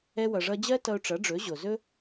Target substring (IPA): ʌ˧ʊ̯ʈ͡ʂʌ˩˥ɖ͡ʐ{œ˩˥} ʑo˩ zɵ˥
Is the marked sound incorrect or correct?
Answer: incorrect: ɵ˩˥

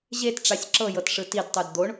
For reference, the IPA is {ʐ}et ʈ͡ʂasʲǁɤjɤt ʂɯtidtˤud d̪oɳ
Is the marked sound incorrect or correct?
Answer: incorrect: ʑ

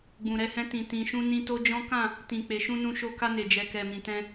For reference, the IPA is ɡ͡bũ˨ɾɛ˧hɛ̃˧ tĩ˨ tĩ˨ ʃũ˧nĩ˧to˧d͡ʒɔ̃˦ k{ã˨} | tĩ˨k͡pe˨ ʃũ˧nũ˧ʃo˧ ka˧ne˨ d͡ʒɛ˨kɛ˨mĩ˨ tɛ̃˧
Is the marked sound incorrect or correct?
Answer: incorrect: ã˦˨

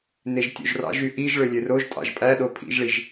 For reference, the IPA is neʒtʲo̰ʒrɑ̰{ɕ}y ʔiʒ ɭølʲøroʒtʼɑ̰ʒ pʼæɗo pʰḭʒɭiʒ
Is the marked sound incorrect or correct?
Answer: incorrect: ʒ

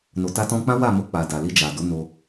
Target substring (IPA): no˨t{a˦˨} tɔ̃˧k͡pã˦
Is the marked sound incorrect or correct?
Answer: incorrect: a˧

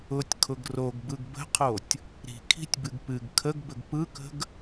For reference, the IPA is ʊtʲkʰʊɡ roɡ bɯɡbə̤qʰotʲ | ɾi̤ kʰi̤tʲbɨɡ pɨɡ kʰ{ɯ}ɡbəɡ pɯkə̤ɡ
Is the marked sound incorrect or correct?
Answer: incorrect: ə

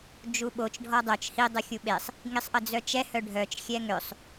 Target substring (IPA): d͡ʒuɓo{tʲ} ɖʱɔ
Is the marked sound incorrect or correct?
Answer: incorrect: t͡ʃ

